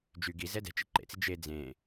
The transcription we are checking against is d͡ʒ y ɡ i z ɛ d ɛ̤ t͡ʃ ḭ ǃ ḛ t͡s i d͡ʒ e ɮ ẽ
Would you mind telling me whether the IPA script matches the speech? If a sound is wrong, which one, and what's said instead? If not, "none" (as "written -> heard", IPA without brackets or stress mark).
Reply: ɮ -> d͡z